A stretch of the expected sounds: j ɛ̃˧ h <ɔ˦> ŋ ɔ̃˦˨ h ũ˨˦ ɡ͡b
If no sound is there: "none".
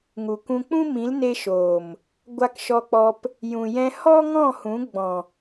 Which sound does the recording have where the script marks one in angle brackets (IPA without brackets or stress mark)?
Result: ɔ˦